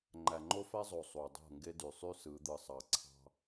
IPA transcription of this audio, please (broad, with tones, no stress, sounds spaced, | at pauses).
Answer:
ŋ͡ǃ æ˨ ŋ͡ǃ o˦ f æ˦ zˤ o˨ sˤ u˨ dˤ o̤˦˨ ŋ ɡ e˦ d y˨ sˤ y˦ s ɯ˨˦ d̪ ɯ˨ sˤ ɑ˨ ǀʰ ɑ̤˦